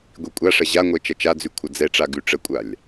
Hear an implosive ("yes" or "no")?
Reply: no